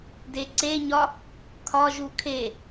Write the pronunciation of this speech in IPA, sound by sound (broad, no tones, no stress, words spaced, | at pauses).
deǀeɲɒ | kʰɒʒu kʰe